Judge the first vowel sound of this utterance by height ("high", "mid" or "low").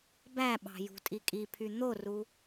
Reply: low